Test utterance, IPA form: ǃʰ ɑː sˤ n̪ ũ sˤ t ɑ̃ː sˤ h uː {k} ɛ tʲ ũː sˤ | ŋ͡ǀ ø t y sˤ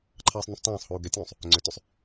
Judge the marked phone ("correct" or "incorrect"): incorrect